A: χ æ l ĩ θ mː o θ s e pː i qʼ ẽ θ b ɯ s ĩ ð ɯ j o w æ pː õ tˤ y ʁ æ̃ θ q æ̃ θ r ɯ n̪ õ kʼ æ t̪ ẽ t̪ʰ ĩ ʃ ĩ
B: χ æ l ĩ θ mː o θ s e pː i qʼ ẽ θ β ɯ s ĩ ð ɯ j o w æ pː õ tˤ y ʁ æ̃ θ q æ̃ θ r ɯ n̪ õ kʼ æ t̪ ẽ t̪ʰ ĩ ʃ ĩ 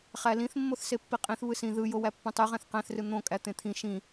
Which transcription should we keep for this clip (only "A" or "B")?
B